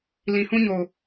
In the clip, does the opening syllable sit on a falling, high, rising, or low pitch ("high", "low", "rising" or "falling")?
low